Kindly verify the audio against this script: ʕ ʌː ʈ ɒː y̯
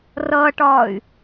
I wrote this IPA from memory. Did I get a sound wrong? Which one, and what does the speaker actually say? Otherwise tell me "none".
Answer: ʕ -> r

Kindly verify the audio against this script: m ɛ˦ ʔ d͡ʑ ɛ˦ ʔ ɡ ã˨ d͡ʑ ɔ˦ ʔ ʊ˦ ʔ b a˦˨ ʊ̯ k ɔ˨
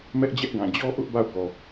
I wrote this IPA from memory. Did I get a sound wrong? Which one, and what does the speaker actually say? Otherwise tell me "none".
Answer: none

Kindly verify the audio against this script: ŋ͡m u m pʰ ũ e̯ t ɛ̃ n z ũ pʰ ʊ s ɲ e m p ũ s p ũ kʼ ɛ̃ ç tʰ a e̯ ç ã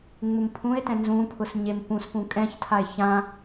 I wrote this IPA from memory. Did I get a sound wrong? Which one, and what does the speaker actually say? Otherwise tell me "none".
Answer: none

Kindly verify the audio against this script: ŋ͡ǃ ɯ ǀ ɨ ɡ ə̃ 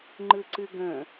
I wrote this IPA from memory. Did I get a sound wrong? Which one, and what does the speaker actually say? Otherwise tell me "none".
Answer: none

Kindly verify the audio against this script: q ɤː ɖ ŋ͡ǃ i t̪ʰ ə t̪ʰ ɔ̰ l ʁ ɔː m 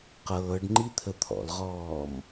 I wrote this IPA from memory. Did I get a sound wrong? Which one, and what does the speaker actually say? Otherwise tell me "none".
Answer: none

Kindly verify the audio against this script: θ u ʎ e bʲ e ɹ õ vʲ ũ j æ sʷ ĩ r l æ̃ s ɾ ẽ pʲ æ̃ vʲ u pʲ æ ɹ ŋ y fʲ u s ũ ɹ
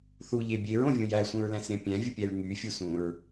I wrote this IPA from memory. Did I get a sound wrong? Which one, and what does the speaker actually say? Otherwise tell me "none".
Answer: r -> ɹ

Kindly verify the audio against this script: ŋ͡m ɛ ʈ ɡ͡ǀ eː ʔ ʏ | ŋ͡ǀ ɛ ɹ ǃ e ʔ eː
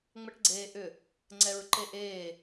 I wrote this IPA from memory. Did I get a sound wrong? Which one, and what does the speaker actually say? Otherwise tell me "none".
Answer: none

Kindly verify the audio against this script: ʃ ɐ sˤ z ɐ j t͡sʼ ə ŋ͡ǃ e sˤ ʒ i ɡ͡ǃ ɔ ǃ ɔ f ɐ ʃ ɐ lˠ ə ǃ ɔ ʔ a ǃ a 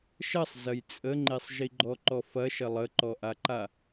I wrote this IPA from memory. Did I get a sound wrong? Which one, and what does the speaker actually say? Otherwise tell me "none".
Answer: none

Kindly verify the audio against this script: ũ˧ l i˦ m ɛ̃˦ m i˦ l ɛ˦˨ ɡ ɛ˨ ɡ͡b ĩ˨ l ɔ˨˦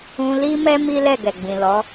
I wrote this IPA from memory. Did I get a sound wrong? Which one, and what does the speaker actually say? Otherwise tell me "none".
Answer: ɛ̃˦ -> ɛ˦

